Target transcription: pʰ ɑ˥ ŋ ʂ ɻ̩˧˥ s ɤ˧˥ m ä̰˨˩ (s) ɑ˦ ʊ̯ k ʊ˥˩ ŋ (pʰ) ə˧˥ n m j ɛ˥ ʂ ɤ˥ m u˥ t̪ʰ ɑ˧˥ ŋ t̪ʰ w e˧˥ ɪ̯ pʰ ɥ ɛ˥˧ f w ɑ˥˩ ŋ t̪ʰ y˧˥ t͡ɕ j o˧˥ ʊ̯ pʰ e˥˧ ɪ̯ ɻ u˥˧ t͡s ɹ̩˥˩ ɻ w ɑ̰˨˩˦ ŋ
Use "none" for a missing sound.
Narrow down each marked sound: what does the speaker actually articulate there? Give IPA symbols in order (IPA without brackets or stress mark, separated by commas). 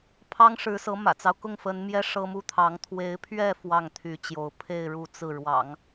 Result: t͡s, f